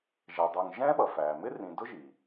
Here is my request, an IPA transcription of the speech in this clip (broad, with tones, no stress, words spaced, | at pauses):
ʒɛ˩dˤə˞˨ŋ ʒɛ̃˦ɓʌ˩fæː˩ mɪ˦rĩ˩ dʊ˥ʒi˩